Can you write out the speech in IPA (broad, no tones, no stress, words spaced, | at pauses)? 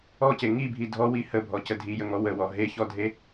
ɔce ŋibʱi dʱɔwi həbʱɔcə dʱijəŋɔ wəwɔ ɦeçɔdʱe